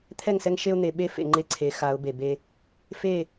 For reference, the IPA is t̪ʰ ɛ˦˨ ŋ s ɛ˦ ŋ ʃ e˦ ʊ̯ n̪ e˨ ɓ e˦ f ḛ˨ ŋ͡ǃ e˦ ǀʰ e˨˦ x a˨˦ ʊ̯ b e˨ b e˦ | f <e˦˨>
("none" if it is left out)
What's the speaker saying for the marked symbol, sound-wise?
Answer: e˦˨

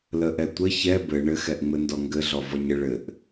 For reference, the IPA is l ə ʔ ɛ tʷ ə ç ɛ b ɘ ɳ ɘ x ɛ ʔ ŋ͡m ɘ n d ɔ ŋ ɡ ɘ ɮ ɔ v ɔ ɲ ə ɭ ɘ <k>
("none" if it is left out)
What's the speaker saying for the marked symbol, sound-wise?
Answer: ʔ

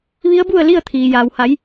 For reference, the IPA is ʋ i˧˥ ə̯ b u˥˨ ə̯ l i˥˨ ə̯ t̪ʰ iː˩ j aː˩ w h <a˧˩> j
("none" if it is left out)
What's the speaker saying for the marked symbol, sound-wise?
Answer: a˩˧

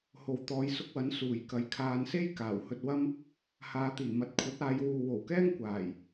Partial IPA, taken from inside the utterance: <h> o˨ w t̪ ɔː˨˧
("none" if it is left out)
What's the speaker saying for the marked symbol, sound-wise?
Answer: h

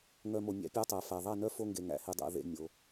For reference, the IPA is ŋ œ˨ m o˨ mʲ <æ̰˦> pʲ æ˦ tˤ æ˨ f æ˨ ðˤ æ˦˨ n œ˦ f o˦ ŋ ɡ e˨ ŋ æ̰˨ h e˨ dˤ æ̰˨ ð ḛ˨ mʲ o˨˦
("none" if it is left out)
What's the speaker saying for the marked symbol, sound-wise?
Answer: æ̰˦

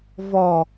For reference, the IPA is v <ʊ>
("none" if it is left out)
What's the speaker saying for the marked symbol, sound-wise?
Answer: ɔ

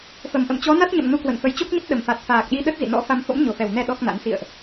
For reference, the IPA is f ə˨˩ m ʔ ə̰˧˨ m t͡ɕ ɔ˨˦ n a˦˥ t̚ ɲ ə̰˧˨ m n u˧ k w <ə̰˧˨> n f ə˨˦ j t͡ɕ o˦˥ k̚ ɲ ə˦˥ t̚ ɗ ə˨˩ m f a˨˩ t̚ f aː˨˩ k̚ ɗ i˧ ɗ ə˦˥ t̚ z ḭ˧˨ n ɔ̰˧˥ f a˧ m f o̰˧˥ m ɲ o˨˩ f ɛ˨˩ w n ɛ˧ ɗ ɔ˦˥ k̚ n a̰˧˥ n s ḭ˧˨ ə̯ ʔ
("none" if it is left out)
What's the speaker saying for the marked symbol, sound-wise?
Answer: ə̰˧˨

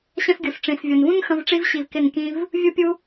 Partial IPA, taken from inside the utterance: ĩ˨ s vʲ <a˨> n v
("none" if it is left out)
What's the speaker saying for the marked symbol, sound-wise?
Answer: ʌ˨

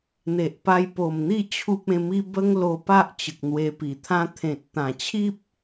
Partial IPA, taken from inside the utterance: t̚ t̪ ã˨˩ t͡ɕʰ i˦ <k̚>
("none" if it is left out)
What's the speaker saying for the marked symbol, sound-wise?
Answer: p̚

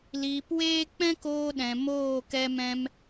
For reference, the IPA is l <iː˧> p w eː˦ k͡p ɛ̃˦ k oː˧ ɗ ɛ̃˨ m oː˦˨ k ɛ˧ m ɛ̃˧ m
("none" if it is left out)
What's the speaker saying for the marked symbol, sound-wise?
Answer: iː˧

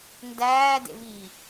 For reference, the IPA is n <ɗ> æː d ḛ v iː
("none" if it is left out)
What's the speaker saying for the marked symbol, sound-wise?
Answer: d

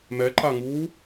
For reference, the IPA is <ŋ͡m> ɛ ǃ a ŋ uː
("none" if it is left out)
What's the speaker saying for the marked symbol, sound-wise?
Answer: m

